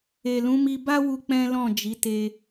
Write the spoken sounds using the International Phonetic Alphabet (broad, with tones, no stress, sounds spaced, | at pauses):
e˨ l ũ˨˦ m i˧ b a˦ w u˧ k͡p ɛ̃˦ l ɔ̃˦˨ d͡ʒ i˨˦ t e˧